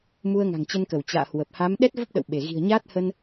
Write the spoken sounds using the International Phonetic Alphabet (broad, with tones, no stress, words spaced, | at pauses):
mu˧ə̯ŋa̤˨˩ŋt͡ɕə˧nkə˧˩w t͡ɕa̰ː˧˨hwə˨˩p̚ ha˨˦m ɗɛ˦˥t̚və˦˥p̚ɗə̰˧˨w ɓe˧˩ ɣi̤˨˩ə̯ɲaː˦˥t̚hə˧n